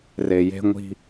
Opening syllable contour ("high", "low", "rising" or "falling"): low